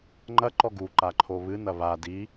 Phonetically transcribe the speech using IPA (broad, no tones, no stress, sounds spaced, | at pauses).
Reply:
ŋ͡ǃ ɐ ǃ ɔ ɡ u ǃ a ǃʰ o β ɨ n ɐ β a d i